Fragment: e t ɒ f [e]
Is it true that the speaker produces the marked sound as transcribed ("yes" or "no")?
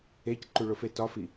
no